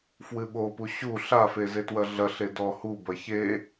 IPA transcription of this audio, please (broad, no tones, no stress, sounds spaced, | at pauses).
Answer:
f w ɨ ɓ o p u ɕ u ɬ a f e z e t w ɐ ɮ ɐ ɬ e d ɔ h u b ɐ ç e